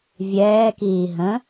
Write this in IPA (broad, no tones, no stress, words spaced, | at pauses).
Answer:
vʲɛːkiː ɦə̃